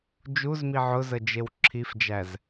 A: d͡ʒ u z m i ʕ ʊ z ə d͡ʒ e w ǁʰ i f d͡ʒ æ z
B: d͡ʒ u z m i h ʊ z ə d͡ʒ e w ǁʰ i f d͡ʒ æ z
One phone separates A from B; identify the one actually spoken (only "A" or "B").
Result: A